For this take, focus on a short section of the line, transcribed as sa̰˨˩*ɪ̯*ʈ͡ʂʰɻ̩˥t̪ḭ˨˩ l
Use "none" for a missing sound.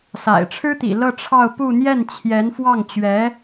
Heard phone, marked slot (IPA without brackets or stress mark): ɪ̯